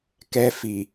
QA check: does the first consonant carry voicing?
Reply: no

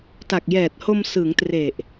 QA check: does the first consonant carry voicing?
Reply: no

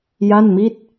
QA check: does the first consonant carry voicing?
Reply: yes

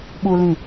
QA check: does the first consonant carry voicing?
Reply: yes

